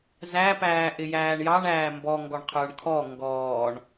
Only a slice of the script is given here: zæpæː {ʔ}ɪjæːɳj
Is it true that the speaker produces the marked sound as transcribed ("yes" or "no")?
yes